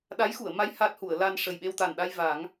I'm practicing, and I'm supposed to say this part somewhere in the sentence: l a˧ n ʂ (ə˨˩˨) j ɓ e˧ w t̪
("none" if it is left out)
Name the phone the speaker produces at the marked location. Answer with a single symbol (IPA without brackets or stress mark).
ə˨˩